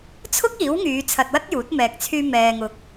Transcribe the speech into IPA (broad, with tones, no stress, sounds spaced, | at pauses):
t͡sʰ ʊ˥ k̚ iː˨˥ w ŋ yː˨˧ t͡sʰ ɐ˧ t̚ w ɐ˥ t̚ j uː˨˥ t̚ m ɛː˨ k̚ t͡sʰ yː˧ m ɛː˨ ŋ ʊ˨ k̚